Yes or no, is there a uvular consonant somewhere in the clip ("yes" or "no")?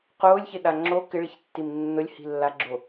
yes